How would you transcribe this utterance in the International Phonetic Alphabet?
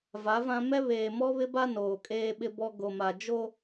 va˨˦vã˦ mɛ˦ βeː˨mɔ˦βɪ˦ba˦ noː˨kʼeː˦ɓɪ˦bɔ˦ ɡo˨ma˨ d͡ʒo˦

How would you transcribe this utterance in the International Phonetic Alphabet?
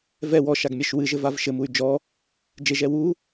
vɛ wɔʃaɡmʲɛʃ wɨʒɘvav ʃɘmuy̯ d͡ʒɔ | d͡ʒeʒɛ wu

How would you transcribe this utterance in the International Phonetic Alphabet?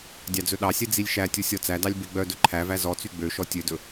dʲɑd͡zɵɗɑsʲɛ d͡zilʲʃætʲu sʲɔt͡sædɑlʲ beɡ͡bœdɵ ǃʰævæ zɔt͡sy ɡ͡bøʃɔ tʲødɵ

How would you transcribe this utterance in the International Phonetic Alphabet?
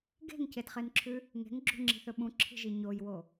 ɡe̤ŋcedχenǁʰʉ | ŋe̤ŋɡ͡ǁṳŋ͡ǁi̤θɵ ɓũǁʰi̤ʒi ɲojwo

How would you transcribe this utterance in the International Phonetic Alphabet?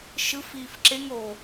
ʃɯf iːfǁeŋ o

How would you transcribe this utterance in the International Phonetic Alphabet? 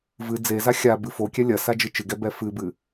vɨ d͡zeza xʲabɨ fokʲɛ lʲɐ sad͡ʒɨt͡ʃɨɡɛ bɛfɨbɨ

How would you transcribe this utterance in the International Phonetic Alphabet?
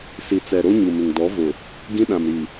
si˨t͡sɛ˨ ɾo˦ ɲu˨mɪ˨ŋ dɔ˨˦vʊ˨ | ɡĩ˦ɗã˨mɾi˨

